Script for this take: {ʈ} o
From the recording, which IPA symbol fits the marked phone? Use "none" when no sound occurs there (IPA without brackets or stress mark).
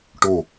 ʈ